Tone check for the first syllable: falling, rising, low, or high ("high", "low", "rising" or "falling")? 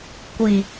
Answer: low